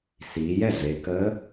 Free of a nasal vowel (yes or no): yes